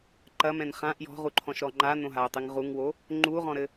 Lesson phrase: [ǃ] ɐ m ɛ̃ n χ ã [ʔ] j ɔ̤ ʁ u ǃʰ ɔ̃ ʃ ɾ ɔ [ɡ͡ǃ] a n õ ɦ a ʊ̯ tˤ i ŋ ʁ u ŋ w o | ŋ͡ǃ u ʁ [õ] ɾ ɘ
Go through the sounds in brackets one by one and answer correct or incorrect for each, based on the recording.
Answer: correct, correct, incorrect: ŋ͡ǃ, incorrect: ɔ̃

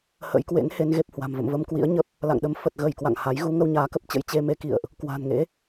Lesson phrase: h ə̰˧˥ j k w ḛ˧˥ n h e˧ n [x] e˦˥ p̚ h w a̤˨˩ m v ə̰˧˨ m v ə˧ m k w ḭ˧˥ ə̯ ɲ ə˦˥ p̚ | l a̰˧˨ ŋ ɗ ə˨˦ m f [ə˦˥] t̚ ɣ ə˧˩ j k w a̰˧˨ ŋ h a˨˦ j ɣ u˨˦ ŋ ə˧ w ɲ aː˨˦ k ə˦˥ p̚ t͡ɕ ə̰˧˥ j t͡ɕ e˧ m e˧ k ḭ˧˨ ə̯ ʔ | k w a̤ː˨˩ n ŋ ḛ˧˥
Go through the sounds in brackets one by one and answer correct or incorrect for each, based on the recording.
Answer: incorrect: ɣ, incorrect: ə˨˩

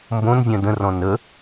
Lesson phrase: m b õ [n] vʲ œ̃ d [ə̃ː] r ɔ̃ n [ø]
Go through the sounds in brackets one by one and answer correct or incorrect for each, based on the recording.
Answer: correct, incorrect: ə̃, incorrect: ə

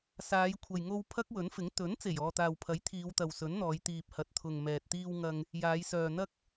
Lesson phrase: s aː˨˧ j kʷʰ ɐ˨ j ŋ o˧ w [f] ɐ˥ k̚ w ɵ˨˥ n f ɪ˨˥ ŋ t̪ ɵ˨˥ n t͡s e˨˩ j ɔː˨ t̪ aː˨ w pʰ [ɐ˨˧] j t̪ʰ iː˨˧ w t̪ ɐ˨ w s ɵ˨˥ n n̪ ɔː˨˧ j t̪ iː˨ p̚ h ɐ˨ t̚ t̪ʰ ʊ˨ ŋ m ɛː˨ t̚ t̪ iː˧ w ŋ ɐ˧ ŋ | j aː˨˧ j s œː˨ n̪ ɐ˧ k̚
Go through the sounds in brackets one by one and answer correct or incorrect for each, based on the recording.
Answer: incorrect: pʰ, incorrect: ɐ˨˥

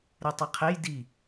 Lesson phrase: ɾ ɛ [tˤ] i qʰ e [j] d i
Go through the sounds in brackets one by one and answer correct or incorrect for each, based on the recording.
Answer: correct, correct

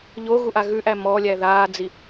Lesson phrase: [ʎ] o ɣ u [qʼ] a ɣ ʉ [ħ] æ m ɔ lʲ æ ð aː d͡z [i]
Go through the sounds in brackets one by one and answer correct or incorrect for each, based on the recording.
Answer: correct, incorrect: ʔ, incorrect: ʔ, correct

